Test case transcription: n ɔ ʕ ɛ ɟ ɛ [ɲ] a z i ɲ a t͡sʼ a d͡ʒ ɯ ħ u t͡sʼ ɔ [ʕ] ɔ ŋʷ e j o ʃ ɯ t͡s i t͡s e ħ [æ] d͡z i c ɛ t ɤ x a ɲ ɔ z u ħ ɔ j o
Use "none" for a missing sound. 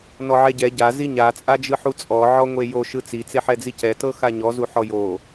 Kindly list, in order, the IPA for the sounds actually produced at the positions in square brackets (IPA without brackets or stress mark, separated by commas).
ɟ, ʕ, ɛ